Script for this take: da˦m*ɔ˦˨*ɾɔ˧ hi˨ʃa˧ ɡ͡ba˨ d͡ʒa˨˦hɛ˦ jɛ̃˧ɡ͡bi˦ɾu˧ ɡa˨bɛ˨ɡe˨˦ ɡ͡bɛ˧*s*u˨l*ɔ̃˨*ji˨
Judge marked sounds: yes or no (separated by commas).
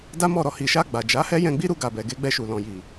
yes, no, yes